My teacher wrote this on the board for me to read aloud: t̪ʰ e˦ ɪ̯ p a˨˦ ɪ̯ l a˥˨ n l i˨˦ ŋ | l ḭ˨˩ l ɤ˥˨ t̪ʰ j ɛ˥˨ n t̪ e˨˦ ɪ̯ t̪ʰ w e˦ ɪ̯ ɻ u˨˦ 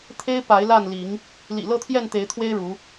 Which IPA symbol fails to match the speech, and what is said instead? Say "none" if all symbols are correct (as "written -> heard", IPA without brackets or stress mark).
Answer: none